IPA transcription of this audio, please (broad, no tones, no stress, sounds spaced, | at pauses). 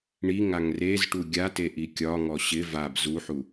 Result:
ɳ i ŋ a ŋ r e z ʈ u ɡʲ a t e ʔ i kʲ ɒ ŋ ɔ ɕ ɪ v a b z u ħ u